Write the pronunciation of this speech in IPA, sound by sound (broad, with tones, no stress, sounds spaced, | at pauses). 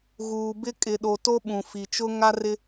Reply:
ɣ uː˨ b ɪ˦ kʼ ɪ˨ ɗ o˨ t o˦ ɓ ũ˨ f i˨ t͡ʃ ʊ˦ ŋ a˦ r ɪ˦